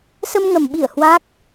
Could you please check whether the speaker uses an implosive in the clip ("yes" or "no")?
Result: yes